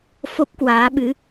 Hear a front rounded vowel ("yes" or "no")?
no